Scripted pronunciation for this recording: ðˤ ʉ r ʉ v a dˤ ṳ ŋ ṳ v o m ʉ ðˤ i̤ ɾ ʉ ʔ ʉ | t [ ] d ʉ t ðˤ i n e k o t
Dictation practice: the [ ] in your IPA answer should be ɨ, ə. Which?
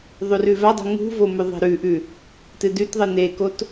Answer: ɨ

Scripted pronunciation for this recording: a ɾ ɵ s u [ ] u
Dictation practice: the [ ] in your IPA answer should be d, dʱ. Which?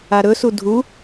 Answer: dʱ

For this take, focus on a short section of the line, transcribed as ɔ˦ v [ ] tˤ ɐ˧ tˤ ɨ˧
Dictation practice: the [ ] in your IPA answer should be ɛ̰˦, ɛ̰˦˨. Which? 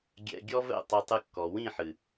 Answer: ɛ̰˦˨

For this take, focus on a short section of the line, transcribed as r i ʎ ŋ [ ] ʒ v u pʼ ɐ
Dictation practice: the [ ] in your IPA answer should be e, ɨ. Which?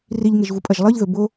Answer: e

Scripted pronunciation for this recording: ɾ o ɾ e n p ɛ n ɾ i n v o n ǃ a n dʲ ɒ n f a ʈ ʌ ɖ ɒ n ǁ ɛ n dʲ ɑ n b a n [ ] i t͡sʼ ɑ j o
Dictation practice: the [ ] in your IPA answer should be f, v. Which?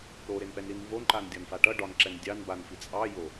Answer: f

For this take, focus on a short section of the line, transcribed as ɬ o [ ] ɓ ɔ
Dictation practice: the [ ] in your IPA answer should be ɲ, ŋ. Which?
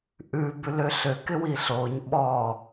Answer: ɲ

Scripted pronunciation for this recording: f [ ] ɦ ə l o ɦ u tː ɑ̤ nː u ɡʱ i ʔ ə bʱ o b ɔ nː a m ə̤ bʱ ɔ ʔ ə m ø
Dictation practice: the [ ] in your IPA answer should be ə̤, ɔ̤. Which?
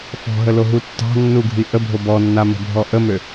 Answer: ɔ̤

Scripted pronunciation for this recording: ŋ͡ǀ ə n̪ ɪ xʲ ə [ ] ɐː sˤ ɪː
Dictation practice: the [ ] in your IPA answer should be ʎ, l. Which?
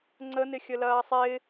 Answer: l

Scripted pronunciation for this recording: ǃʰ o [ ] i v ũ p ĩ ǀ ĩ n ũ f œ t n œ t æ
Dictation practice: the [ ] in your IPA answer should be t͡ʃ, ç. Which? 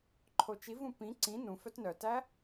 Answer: t͡ʃ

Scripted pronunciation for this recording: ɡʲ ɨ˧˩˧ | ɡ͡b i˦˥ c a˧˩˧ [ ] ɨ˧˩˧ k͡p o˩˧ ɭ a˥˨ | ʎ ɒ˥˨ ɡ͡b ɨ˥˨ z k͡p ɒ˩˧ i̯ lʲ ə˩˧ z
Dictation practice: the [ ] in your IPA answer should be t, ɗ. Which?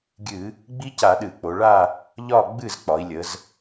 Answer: ɗ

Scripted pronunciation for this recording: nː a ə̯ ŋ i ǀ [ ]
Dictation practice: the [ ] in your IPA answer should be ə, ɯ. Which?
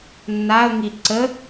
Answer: ə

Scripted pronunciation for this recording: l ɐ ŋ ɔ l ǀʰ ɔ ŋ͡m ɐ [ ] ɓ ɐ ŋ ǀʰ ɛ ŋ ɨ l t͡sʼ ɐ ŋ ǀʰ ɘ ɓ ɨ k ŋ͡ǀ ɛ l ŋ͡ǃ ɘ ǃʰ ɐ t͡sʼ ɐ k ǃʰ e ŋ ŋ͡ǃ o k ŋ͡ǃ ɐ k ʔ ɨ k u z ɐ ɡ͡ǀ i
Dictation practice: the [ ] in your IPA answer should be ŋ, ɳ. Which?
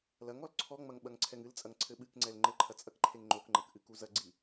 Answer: ŋ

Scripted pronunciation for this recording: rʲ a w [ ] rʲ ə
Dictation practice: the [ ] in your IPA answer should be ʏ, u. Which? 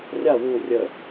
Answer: u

